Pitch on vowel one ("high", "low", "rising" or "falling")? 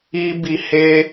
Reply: high